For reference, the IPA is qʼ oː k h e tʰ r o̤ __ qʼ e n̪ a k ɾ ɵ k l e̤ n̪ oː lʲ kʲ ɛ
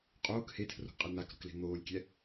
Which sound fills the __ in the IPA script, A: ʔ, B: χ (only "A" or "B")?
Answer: A